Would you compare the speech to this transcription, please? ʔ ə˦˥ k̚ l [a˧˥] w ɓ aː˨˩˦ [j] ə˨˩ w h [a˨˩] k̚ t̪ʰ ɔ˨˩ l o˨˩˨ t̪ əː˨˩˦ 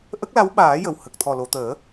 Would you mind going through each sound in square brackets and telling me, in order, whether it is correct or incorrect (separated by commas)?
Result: correct, correct, incorrect